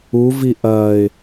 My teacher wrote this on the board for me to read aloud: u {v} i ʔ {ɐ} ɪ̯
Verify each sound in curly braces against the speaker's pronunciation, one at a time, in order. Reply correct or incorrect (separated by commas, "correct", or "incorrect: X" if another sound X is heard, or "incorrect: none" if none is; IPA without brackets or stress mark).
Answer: correct, incorrect: ɐː